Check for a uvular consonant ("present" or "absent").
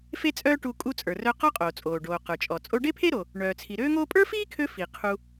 present